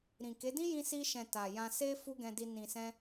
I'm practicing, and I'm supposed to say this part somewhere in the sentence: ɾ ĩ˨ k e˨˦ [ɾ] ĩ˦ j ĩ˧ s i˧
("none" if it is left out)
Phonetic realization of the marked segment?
d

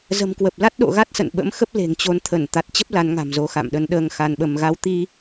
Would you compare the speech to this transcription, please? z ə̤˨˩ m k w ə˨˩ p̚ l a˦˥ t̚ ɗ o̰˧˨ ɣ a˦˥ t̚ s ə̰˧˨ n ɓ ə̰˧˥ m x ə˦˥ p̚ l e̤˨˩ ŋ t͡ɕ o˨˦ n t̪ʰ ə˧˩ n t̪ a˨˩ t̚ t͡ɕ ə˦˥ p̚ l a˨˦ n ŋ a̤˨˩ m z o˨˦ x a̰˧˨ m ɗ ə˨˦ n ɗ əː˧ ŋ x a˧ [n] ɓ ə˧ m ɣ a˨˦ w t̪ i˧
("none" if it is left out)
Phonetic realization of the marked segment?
n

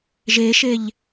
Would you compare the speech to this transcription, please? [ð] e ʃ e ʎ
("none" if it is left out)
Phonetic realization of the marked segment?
ʒ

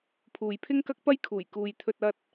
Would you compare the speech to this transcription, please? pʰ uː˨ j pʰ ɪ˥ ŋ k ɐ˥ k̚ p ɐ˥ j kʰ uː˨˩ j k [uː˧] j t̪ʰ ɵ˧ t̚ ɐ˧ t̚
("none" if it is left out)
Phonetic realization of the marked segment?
uː˨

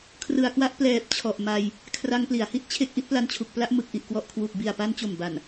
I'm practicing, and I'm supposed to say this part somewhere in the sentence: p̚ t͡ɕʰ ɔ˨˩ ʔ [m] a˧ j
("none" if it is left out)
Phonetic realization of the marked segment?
m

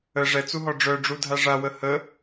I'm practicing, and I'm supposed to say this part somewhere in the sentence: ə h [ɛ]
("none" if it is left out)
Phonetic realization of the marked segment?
ə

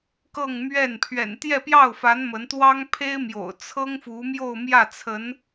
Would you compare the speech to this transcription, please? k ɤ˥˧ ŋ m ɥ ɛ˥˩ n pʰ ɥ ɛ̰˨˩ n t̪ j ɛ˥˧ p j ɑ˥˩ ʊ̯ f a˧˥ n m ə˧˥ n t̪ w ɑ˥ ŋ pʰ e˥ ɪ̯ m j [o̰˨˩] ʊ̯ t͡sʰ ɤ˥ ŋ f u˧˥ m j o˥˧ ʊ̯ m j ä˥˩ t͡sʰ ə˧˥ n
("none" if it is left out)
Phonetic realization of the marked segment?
o̰˨˩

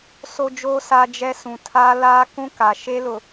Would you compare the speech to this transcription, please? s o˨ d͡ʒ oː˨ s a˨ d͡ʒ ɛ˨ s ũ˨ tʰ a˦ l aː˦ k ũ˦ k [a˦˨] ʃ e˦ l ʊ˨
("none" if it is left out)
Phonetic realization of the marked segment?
a˨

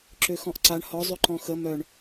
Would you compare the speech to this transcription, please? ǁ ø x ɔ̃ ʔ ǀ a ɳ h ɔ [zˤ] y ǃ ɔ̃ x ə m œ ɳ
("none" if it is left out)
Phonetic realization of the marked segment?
zˤ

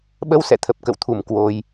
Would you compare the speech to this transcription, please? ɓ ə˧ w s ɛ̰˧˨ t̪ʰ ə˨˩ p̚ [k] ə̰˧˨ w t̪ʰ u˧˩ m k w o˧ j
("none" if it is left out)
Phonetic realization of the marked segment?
k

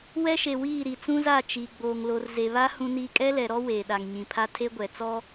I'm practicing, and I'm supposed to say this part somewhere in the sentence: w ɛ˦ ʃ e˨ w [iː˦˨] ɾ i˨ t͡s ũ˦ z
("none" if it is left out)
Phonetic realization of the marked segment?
iː˦˨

